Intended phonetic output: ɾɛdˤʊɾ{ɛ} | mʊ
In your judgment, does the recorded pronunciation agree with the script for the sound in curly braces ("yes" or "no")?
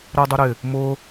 no